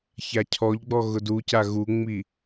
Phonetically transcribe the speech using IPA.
ç a cʰ ɔ ʎ ɡ͡b ɔ ɣ ʊ d u c a ɣ u ŋ͡m i

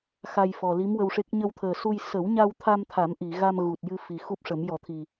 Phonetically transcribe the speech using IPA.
x a˧ j f ɔ˨˩ l i˧˥ m w ə˧ w ʂ e˦˥ k̚ ɲ ə˧ w t̪ʰ əː˨˩ s u˧ j s ə˨˩˦ w ɲ a˧ w t̪ʰ a˧ m t̪ʰ a˨˩˦ m ʔ i˨˩˨ ɣ a˧ m ɣ u˨˩ t̚ j ɨ˧ f i˨˩ x u˦˥ p̚ ʂ ə˨˩˦ m j ɔ˨˩˦ t̪ʰ i˨˩

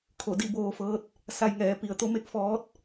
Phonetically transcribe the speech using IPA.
kʰ o˧˩ d i˥˨ b oː˧ f ɤː˧˥ t̚ | s a˧ j ŋ ɛː˩˧ p i˩ ə̯ t̪ o˧˥ m e˧ k̚ f ɔː˧˥ t̚

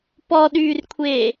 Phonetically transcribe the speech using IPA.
p ɔ ɗ yː r kʷʰ eː

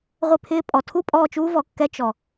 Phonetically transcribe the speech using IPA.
ʁʷ ɪ˦˨ pʰ ɪː˦ pʼ ɔ˨ tʰ u˦ pʼ ɔː˦˨ t͡ʃ uː˦ v ɔ˨ kː ɛ˦ t͡ʃ ɔ˨

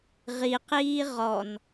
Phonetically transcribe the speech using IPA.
ʁ i q iː ʁ ɔ n

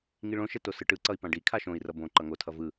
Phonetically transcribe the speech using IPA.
ŋ i ɭ õ ʃ ɛ t o s ɯ ʈ ɯ ǀ ʌ i̯ p ã ɖ i kʰ a ʃ õ i̯ r ʌ b õ ǃ ʌ ŋ o tʰ ʌ v ɯ

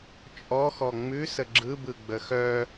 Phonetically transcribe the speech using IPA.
t͡ʃʼ ɔ x ɔ ŋ͡m ʉ s ə ɡ͡ǁ ɯ b ɯ ɡ͡b ə x œ

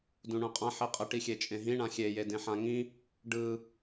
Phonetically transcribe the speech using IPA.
d ũ ɳ ũ qʼ ã ħ i qʼ ə ʈ i xʲ e t͡ʃʼ ẽ ɦ ĩ ɳ ã xʲ e j e d ẽ ħ ã ŋ ĩ | ɖ ɯ

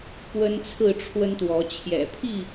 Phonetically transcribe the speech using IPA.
p w ə˦ n t͡sʰ ɹ̩˥˨ ʈ͡ʂʰ w ə˦ n t̪ w ɔ˨˦ t͡ɕʰ j ɛ̰˨˩ pʰ i˥˨

